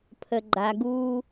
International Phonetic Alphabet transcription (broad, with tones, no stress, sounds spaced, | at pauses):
pʰ ə˨ ɡ͡ǃ a˨ ɡ uː˦